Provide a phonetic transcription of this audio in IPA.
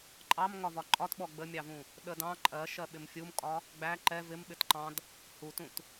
ǃʼ ɑ m ŋ ɒ v ɒ ǃʼ ɒ t ɓ ɔ ɡ͡b ə mʲ ɑ v ũ | ɗ ə d ɑ̃ ǃʼ ɜ ʃ ɜ ɓ ɪ m fʲ u m kʼ ɒ | ɡ͡b æ ǃ ɛ v ɪ m ɓ ɪ t ǃ ɑ̃ d | h u t ũ t

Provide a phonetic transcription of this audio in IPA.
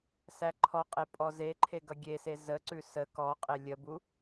s æ ǃʰ ɔ qʼ e pʼ ɔ z e ǃʰ e ɡ ʌ ɡʲ e s e z ə ǀ ʉ s ə k ɔ qʼ e lʲ ə b u

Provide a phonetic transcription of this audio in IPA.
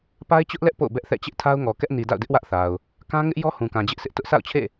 p a˦ ɪ̯ t͡ɕ ʊ˦ ʔ l ɛ˦ ʔ p o̰˦˨ ʊ̯ b ɛ˦ ʔ θ ɛ̰˦˨ t͡ɕ ɪ˦ ʔ tʰ a˦ ʊ̯ ŋ ɔ˨ k ɛ˦ ʔ n i˨ d a̰˦˨ ʊ̯ d ɪ˦ ʔ w ä˦ ʔ θ a˨ ʊ̯ | k ã˦ ŋ ɪ˦ ʔ j ɔ˦ h ũ˨ k ã˨ d͡ʑ ɪ˦ ʔ sʰ ɪ˦ ʔ t ʊ˦ ʔ s a̰˦˨ ʊ̯ t͡ɕʰ ḛ˦˨

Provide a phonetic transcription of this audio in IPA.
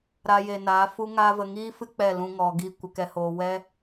ɾ a˧ j e˨ n aː˨˦ f u˦ ŋ aː˦ v ə˧ ŋ iː˦ f ɨ˦ k͡p ɛ˦˨ l ũ˧ ŋ ɔ˨ ɡ i˦˨ kʷ ə˧ k ɛ˧ h oː˧ w ɛ˦

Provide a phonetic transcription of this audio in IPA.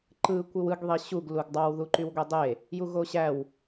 ǃ ɯ kʷ ɯ w ɯ ɡ ðˤ i ɕ u ɡ l u ɡ dˤ ɑ w ð u ǃ y w ɡʷ e dˤ e | j u ɣ o ɕ æ w

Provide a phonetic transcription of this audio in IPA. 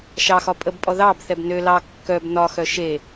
ʃ ɑ x ɒ pʼ ə b pʼ ɔ ð ɑ b θ ɛ b n ø l ɑ kː œ b n ɒ x œ ʃ e

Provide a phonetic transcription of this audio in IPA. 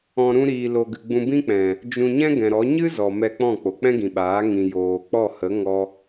ɔ̃˧ ɾ ũ˧ ɾ iː˨ l o˨ ɡ ɨ˨ ɡ͡b ũ˧ b ĩ˦ k͡p ɛ̃˨ | d͡ʒ ũ˧ ɲ ɛ̃˦ ɡ ɛ̃˨ ɾ ɔ˨˦ ɲ ɨ˦ z ɔ˨ m ɛ˧ k͡p ɔ̃˦˨ k͡p o˨ k͡p ɛ̃˦ ɡ ĩ˨ ɓ aː˨˦ ŋ ĩ˨ j oː˨ k͡p ɔ˦˨ h ə˨˦ ŋ ɔ˦

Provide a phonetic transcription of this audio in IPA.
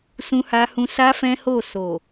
s ũ˦ h a˦ h ũ˦ s a˦ f ɛ̃˦ h o˦˨ s o˨

